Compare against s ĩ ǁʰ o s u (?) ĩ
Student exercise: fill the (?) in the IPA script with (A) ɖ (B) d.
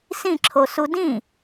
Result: B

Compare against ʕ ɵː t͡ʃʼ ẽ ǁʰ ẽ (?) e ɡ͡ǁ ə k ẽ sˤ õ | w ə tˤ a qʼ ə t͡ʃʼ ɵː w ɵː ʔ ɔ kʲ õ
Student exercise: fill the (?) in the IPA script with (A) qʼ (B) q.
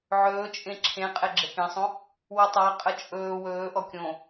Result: A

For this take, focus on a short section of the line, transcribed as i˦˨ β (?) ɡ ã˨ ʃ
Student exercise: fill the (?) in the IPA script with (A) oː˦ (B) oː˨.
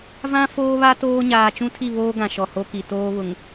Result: A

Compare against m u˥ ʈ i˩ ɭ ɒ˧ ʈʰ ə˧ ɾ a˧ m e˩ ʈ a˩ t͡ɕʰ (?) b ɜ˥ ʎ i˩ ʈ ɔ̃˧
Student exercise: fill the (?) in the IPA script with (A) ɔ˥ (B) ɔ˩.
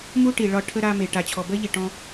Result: B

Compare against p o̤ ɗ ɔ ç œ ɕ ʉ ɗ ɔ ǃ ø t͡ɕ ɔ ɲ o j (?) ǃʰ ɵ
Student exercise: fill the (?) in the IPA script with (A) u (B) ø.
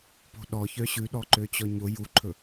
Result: A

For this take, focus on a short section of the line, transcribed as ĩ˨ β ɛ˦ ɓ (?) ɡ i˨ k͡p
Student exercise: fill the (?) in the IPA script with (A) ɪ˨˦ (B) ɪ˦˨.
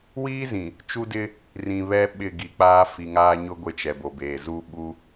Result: B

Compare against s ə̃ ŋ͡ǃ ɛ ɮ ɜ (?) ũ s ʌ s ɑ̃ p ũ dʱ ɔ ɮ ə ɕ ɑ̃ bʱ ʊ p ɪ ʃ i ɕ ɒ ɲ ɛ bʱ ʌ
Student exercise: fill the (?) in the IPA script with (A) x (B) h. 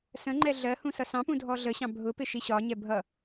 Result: B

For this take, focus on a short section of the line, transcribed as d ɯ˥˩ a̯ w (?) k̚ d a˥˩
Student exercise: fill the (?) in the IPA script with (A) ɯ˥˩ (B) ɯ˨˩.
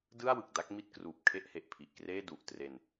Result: B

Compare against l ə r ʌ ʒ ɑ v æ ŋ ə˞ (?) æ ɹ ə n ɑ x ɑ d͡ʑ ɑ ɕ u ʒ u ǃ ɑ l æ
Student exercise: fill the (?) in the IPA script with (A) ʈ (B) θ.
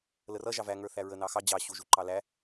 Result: B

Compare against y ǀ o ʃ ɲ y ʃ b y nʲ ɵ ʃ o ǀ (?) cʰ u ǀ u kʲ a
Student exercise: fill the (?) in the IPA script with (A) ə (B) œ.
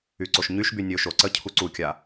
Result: A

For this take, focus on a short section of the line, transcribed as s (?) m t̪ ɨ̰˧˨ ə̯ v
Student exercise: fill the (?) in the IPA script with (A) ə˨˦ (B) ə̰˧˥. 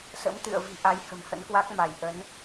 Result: B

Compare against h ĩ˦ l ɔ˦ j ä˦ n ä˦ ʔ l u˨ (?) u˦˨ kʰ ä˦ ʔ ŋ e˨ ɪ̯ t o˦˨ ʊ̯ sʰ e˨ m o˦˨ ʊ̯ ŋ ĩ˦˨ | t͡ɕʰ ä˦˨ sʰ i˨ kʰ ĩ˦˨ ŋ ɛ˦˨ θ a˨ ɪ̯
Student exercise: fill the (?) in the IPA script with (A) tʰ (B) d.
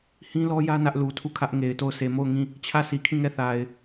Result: A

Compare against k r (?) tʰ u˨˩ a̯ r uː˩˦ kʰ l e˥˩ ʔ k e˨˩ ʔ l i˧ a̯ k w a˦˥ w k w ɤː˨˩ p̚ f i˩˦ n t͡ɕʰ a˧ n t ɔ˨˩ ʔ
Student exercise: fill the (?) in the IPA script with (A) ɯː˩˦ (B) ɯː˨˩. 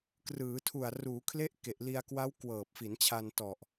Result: A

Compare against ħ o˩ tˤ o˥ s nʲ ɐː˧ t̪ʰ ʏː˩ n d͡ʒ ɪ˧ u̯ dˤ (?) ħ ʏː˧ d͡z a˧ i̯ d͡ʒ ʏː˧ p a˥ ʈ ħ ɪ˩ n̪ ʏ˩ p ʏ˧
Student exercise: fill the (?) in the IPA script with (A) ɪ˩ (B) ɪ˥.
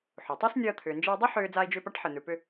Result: B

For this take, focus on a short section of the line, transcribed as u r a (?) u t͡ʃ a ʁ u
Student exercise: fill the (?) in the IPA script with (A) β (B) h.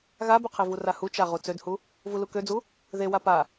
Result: B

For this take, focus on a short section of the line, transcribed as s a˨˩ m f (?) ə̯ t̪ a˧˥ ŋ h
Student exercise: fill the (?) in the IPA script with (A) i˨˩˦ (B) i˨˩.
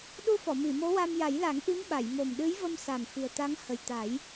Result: B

